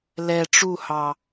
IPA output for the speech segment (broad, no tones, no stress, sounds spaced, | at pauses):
l ɛ ʈ͡ʂ u h ɑ